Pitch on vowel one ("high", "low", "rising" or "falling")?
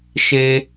high